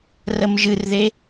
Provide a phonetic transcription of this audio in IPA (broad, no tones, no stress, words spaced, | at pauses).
rəmʒɨrðe